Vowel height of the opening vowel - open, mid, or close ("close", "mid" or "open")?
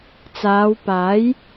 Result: open